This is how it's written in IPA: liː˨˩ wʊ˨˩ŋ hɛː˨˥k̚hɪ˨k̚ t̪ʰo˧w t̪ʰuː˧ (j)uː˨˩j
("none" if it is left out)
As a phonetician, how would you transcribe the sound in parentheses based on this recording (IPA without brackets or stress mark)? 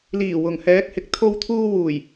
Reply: w